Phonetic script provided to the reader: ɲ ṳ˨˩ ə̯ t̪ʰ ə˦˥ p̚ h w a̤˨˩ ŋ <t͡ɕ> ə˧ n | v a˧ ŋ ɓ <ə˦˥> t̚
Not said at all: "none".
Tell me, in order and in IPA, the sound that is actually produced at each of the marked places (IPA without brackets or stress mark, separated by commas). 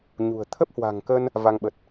k, ə˨˩